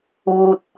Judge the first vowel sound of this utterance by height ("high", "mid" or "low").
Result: high